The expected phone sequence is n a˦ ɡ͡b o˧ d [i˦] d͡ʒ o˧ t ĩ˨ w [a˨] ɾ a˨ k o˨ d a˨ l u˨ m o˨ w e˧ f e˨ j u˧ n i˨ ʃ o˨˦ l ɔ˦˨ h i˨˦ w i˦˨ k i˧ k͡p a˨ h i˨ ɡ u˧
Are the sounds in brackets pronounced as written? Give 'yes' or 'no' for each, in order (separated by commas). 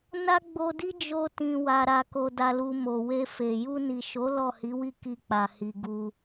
yes, yes